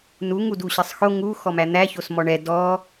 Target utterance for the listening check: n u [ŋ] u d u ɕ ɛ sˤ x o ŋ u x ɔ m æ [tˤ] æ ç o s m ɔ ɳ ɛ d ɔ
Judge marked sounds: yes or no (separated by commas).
yes, no